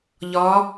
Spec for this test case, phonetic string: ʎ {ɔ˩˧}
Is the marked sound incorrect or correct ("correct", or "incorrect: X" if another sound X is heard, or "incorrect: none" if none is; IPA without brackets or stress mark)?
correct